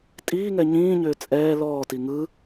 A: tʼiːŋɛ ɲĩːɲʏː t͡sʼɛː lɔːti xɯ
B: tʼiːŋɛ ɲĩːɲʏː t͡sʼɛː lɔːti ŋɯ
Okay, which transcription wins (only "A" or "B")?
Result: B